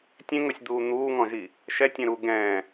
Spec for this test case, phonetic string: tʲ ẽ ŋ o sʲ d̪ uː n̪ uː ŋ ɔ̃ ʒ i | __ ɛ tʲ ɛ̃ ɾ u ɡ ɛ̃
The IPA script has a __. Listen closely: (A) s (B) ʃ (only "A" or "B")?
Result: B